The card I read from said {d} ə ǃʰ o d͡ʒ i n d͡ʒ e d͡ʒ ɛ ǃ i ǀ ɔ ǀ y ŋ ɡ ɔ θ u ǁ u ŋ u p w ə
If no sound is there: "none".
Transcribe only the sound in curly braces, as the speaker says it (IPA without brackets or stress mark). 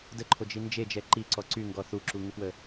d